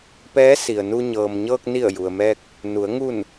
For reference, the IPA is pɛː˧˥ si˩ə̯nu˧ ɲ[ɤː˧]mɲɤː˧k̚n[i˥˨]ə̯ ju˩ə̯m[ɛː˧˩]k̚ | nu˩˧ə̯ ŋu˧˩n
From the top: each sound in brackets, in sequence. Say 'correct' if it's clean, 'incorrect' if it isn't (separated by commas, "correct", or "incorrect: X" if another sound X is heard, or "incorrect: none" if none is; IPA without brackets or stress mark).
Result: incorrect: ɤː˩, incorrect: i˧˩, incorrect: ɛː˧